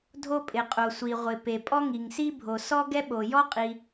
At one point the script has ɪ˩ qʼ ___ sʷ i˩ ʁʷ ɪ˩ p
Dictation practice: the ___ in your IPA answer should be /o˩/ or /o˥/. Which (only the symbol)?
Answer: o˩